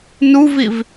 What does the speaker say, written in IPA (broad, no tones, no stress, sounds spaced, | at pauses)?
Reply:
n u v i v